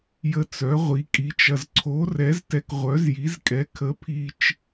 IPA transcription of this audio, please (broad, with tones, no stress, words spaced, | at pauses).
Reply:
jə˧ t͡sœ˨˥ʁʷi˨˥kʼi˨˥t͡ʃɐ˧z ǀʰo˨˥rɛ˨˥z tɛ˧kʁʷœ˨˥zji˨˥zkʼɛ˨˥ kʰə˨˥pʰi˧t͡ʃ